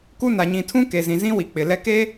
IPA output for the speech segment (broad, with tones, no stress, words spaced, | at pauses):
ku˦ na˨ɲĩ˨tʰũ˦ ke˨zĩ˨zĩ˦wi˨ k͡pɪ˨lɛ˦ ke˦